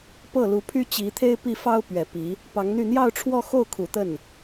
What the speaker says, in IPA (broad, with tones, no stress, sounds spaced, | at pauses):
p ɤ˥˩ l u˧˥ pʰ y˥ t͡ɕ i˧˥ t̪ʰ e˥ ɪ̯ p i˥˩ f ɑ˥ ʊ̯ p ɥ ɛ˨˩ p i˧˥ | p ɑ˧˥ ŋ n̪ y˥˧ n̪ j ɑ˥˧ ʊ̯ ʈ͡ʂʰ w ɔ˥˧ x o˥˩ ʊ̯ kʰ u˨˩ t̪ ə˥˩ n